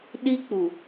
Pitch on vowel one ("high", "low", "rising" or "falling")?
high